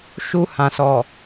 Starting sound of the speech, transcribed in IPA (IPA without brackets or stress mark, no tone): ʃ